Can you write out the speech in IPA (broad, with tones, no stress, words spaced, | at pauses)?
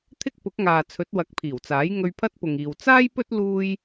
t̪ʰɪ˥k̚pʊ˨˥k̚ŋaː˨ t͡sʰɵ˨˥t̚wɐ˨˥k̚pʰiː˨˩wt͡saː˨˥j ŋɵ˧ɥpʰɐ˥t̚pʊ˨ŋiː˨w t͡saː˥jpɵ˥t̚ luː˥j